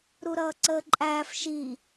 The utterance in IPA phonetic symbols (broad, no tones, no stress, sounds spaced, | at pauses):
ɾ u ɾ ʌː ǀ əː ǃʼ æː f ʃ i